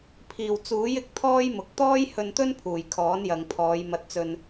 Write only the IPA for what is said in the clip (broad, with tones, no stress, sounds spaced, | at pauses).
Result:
pʰ iː˨˩ w t͡s uː˨˥ j ɪ˧ k̚ t̪ʰ ɔː˥ j m ʊ˨ k̚ t̪ ɔː˥ j h ɵ˧ n t̪ ɵ˥ n pʰ uː˨˩ j kʰ ɔː˨˥ n j ɐ˨ ŋ pʰ ɔː˨˧ j m ɐ˧ t̚ t͡s ɵ˧ n